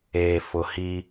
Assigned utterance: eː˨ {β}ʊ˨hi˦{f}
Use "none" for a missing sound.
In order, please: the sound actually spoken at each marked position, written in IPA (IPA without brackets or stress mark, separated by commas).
f, none